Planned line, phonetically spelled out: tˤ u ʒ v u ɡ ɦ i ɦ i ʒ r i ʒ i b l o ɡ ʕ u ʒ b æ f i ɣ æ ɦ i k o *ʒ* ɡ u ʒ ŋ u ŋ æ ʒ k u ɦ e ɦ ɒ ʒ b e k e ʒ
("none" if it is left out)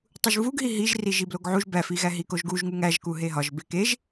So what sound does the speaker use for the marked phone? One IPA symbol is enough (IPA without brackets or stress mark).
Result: ʒ